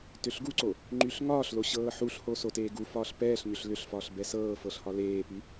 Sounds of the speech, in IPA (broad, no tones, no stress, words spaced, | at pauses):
tʏɬɡuǀo | ŋ͡ǃyɬŋɒːɬlo ɕɤːħuɬho soteːɡufɒːɬ pɛːɬɲʏɬ lʏɬfɒɬ bɛsɤːfɤɬ hɒleːpy